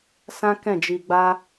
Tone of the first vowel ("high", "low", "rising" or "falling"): high